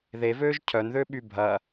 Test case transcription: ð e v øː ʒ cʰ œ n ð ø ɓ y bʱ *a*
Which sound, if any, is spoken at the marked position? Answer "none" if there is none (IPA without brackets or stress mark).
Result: ɐ